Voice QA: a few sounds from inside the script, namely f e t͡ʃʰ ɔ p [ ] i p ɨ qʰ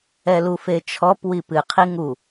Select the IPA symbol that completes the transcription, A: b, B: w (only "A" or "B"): B